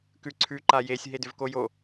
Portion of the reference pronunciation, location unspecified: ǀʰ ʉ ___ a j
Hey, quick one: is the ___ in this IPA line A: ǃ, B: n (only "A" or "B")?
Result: A